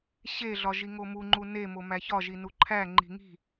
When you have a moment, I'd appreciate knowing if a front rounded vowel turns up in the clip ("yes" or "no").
no